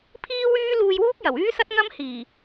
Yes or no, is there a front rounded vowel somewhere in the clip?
yes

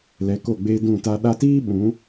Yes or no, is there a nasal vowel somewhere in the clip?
yes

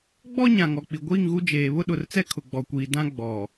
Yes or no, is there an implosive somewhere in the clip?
yes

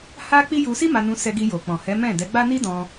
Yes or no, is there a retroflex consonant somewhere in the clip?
no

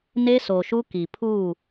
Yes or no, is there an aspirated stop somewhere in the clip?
yes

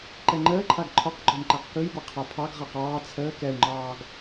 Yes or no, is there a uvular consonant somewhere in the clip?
yes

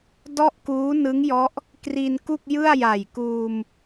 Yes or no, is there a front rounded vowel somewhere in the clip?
no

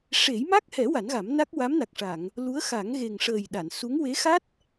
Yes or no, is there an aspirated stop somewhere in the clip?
no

